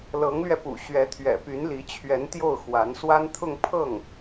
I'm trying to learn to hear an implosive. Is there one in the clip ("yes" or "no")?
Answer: no